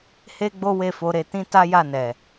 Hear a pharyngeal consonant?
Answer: no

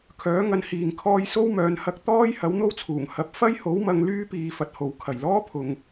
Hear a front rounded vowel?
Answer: yes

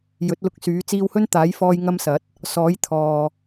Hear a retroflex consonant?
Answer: no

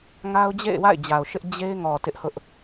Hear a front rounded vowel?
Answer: no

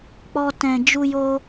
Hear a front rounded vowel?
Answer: no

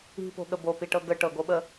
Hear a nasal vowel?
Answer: no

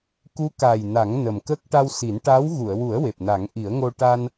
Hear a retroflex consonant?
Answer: yes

